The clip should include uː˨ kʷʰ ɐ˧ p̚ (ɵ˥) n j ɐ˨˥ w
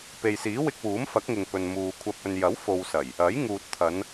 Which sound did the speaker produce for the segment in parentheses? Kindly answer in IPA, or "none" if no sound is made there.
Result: ɵ˧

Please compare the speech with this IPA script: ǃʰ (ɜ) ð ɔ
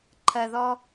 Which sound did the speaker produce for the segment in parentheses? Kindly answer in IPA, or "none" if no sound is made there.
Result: ɜ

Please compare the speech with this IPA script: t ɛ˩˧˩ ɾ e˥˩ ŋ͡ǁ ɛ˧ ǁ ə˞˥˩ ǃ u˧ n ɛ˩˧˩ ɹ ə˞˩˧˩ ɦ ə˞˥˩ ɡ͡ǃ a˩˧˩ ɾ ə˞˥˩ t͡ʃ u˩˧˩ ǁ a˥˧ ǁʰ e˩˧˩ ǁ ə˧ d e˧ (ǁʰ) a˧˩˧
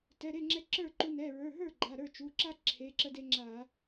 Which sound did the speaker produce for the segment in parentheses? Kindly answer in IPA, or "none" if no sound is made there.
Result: ŋ͡ǁ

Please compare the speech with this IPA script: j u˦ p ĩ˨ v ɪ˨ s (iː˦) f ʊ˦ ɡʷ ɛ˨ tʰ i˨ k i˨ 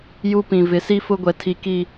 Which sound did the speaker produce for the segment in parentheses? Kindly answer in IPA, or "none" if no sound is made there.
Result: i˦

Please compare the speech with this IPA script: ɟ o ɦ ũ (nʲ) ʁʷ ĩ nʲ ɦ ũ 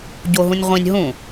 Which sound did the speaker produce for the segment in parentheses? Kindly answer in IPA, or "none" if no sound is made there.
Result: nʲ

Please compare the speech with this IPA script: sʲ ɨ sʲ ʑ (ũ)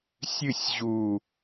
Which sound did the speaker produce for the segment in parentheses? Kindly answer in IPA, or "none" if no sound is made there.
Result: u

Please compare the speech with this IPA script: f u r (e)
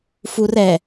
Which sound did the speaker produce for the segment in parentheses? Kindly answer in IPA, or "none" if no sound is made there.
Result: ɛ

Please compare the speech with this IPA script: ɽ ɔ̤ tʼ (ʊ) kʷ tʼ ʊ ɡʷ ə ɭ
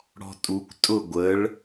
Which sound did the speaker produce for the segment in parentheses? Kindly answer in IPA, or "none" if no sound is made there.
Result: u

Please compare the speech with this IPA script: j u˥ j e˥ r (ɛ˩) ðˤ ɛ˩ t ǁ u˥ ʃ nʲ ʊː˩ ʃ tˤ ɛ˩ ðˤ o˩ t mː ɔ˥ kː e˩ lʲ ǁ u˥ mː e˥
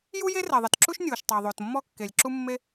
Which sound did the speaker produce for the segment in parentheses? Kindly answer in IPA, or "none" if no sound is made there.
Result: ɛ˩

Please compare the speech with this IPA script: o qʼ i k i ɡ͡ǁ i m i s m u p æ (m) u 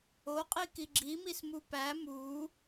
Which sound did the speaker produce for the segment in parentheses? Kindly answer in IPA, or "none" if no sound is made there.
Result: m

